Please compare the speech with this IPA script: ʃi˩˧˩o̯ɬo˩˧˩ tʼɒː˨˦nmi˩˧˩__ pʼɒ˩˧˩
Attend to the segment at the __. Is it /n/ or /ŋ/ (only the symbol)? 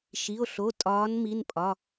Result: n